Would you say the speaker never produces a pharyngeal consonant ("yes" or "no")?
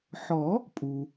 no